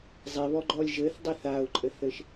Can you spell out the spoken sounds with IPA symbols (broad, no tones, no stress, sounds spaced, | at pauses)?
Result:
zˤ e β ɔ ɡ͡ǃ ɔ lʲ ʒ ɘ θ dˤ e θ a ʊ̯ ǃʼ ɘ θ ɘ ʃ